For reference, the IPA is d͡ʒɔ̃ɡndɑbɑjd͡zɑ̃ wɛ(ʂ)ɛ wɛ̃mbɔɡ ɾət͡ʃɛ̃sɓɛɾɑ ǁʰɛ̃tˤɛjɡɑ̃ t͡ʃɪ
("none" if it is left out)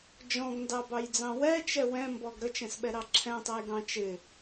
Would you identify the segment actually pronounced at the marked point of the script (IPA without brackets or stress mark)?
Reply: t͡ʃ